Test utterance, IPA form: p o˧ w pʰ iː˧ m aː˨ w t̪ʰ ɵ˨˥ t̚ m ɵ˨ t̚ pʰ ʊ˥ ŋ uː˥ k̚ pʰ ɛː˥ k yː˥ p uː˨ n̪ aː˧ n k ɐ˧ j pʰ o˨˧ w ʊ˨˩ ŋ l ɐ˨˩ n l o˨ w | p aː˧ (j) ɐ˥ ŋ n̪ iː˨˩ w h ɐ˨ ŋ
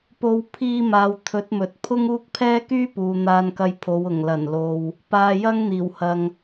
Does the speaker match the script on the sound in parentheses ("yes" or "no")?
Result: yes